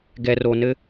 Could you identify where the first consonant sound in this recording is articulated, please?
velar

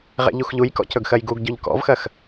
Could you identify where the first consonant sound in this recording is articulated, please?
uvular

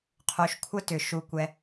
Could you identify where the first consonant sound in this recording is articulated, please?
uvular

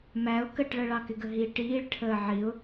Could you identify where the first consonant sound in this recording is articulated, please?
labial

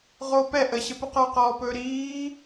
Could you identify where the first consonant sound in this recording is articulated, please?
uvular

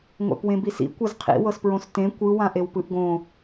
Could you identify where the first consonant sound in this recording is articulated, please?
velar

